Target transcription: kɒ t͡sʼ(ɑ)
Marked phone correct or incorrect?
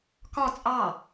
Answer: correct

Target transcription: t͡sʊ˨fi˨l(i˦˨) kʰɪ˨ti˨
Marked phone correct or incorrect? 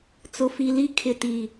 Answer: incorrect: i˦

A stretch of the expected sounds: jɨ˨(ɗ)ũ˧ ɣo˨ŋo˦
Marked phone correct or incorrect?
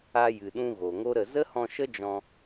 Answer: correct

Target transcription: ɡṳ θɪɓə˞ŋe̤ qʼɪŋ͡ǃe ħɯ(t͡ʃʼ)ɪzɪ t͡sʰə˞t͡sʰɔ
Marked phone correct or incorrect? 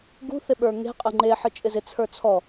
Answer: correct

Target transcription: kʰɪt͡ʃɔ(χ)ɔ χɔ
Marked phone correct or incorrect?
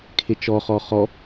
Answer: correct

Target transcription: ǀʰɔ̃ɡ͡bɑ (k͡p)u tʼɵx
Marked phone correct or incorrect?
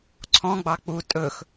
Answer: correct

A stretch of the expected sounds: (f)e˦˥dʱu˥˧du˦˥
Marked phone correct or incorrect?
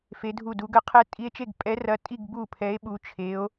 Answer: correct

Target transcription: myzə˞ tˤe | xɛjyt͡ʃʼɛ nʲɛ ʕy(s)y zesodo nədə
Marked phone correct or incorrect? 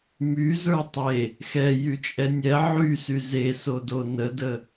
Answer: correct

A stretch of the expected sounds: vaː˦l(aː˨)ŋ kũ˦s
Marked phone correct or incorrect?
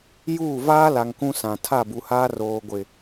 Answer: incorrect: a˨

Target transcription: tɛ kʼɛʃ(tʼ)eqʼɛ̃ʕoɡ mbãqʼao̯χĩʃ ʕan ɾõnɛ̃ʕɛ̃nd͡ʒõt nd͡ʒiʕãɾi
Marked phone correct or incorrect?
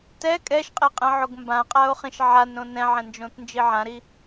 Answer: incorrect: qʼ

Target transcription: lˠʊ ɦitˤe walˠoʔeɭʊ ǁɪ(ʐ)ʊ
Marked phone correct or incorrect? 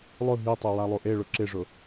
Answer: correct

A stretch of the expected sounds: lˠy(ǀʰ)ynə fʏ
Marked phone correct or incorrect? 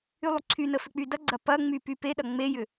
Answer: correct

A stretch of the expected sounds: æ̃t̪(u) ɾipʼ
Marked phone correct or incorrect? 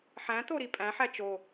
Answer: incorrect: o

